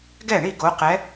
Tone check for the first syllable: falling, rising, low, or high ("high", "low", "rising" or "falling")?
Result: falling